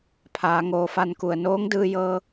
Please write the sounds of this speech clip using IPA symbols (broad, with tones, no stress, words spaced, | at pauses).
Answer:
pʰaː˩˧ŋoː˧fa˥˨nku˧˩ə̯ noː˧˥ŋdɯː˧jɤː˧